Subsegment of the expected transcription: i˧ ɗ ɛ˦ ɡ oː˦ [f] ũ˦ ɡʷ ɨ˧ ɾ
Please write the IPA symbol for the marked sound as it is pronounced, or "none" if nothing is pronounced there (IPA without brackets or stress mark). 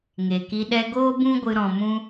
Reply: b